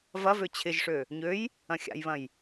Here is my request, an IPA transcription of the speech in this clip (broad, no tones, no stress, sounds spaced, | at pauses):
v ɐ v ø t͡ɕʰ ɪ ʒ ʂ ø | ɲ ø j | ɐ̃ xʲ a̰ j β ɐ̃ j